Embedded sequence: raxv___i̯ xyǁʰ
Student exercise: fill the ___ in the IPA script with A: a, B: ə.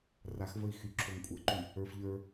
B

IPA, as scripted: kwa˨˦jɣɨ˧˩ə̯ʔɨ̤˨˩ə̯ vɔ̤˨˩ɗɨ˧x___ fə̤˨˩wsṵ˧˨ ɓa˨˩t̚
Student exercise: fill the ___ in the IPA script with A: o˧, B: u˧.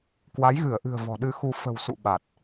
B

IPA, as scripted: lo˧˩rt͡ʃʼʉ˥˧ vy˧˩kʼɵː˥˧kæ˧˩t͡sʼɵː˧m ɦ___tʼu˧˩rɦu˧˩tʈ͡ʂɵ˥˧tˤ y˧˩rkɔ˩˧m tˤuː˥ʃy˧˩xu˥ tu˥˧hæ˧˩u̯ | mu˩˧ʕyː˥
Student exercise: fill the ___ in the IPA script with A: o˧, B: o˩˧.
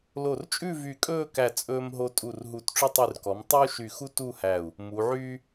A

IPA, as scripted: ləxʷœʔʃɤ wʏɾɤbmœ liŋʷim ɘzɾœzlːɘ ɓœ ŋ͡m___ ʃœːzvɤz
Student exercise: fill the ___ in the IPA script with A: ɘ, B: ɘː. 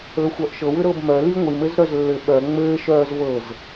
B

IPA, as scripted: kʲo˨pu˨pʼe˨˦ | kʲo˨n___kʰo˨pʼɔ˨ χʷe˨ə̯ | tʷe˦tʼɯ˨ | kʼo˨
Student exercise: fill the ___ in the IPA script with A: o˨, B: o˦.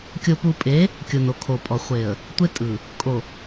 A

